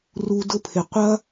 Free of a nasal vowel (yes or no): yes